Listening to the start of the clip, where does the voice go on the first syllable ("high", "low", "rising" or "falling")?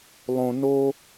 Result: high